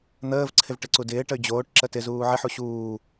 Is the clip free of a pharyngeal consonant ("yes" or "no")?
no